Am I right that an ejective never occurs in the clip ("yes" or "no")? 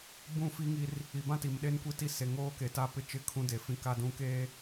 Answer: yes